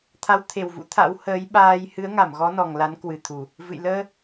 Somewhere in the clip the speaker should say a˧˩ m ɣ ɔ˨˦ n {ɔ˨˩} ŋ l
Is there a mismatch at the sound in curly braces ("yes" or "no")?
no